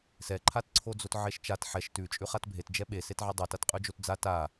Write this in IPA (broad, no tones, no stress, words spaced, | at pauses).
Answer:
sɛǃʰatǀʰod͡zot ʕeʃt͡ʃat ħɛʃ tʉt͡ʃʼʉχat bʱet d͡ʒɛɓe setʕɛdˤo tatqʼʉd͡ʒotd͡za ta